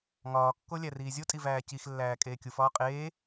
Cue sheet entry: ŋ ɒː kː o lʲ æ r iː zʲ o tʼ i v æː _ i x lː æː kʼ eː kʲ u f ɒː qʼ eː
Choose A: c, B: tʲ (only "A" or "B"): A